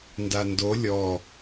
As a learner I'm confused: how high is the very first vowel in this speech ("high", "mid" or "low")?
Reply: low